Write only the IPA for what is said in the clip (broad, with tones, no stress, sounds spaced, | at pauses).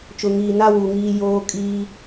t͡ʃ ʊ˨ ŋ iː˨ n a˦ w u˨ ŋ iː˦ j oː˦ kʼ iː˦